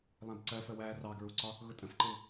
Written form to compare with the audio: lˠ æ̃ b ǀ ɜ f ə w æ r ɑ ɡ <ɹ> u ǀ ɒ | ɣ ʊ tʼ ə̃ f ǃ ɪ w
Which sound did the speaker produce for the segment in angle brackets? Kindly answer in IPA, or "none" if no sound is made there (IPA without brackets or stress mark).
ɹ